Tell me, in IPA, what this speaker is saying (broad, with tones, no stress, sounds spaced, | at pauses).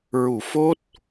ɹ u˨˩˨ f o˦˥ t̚